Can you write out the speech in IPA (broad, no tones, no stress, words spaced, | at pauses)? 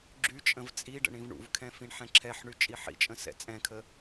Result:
ɡ͡ǁyt͡ʃʼə̃v t͡sʼiɖə̰ ɳĩvɳṵvkʰɛ̃ fĩɳħɛ̃ǁʰɛħɳy t͡ʃʼiħḭt͡ʃʼə̃ sɛ̰t͡sʼɛ̃kʰə